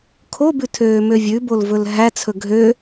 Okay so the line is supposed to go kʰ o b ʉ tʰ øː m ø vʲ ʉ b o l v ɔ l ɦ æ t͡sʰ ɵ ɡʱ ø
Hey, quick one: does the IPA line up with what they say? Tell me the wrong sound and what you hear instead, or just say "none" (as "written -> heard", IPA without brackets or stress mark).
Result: ɔ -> ɵ